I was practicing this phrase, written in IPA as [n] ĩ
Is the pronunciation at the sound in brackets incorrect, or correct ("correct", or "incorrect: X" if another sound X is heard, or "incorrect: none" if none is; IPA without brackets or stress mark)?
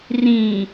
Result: incorrect: r